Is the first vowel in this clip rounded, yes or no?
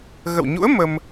no